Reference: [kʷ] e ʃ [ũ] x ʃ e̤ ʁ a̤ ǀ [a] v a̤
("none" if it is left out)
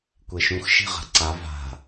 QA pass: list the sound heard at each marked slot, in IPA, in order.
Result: kʷ, ũ, a

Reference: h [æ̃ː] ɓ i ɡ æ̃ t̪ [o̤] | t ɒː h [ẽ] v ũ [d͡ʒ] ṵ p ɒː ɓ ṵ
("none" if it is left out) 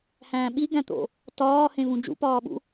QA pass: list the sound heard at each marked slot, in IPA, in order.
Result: æ̃ː, o̰, ẽ, d͡ʒ

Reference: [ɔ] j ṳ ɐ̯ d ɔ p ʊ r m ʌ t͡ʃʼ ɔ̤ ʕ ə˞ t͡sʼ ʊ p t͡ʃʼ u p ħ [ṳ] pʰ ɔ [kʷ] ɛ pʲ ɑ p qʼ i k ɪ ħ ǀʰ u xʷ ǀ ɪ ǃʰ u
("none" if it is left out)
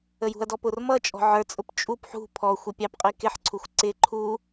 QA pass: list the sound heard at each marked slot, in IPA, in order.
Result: ə, ṳ, xʷ

